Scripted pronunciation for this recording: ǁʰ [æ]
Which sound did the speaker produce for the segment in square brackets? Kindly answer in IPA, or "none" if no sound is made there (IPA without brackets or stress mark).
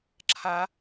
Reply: a